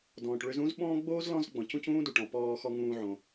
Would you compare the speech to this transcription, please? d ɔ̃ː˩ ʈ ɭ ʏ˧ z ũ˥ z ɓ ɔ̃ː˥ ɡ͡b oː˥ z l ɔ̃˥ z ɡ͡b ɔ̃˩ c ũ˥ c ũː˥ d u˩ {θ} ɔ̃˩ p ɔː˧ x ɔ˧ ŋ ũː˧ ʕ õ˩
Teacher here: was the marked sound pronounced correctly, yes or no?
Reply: no